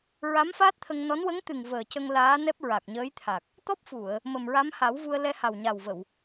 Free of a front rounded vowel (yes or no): yes